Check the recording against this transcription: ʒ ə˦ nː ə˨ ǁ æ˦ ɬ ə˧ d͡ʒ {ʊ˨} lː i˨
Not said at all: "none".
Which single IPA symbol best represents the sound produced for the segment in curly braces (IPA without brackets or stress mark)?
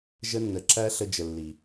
ə˨